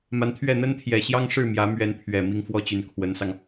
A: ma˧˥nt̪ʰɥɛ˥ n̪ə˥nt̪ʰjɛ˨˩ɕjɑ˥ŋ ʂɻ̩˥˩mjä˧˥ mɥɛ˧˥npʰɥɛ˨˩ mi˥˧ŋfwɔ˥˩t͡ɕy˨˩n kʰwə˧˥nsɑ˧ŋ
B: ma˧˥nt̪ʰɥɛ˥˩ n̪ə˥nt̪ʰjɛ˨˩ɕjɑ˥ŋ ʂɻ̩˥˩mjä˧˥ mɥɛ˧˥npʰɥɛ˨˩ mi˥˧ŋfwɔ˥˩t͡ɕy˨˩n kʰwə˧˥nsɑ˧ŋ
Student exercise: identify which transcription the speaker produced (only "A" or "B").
B